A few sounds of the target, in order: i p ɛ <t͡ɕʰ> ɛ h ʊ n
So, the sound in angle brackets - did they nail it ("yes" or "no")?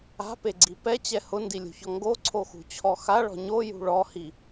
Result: no